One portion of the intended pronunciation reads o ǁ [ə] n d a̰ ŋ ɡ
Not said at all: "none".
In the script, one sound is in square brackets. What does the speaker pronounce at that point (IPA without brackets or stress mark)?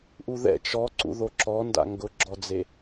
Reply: ɔ